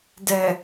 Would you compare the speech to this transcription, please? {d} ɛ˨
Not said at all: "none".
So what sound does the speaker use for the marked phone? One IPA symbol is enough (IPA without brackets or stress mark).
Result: d